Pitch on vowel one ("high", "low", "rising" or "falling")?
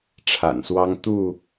low